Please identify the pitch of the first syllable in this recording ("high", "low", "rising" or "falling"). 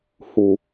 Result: low